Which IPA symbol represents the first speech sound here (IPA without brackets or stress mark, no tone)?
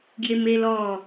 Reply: ɡ